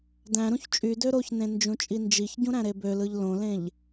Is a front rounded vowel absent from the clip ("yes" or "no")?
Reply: no